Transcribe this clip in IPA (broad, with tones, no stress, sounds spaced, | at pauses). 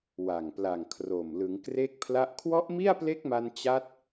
w a˨˩ ŋ p l a˨˩ ŋ kʰ r o˨˩ m l ɯ˩˦ ŋ k r e˥˩ k̚ pʰ l a˥˩ ʔ kʰ w ɔ˦˥ ʔ m i˥˩ a̯ p l e˦˥ k̚ m a˧ n t͡ɕ a˦˥ t̚